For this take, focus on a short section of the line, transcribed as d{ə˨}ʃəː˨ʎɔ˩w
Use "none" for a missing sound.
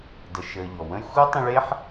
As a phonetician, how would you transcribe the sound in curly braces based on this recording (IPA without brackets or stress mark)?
ə˨